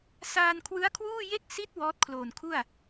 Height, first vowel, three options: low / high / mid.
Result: low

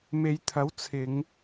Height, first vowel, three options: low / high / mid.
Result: mid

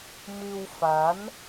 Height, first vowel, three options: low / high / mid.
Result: high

